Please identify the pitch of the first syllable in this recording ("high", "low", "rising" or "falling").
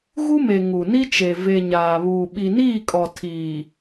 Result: high